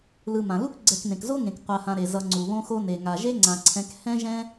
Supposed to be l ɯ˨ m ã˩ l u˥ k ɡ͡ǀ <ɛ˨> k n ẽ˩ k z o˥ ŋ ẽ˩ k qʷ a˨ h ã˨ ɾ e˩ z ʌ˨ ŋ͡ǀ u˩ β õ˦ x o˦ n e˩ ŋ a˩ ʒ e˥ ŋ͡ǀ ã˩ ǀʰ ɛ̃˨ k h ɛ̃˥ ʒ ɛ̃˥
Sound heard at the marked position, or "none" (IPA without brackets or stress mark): ɛ˨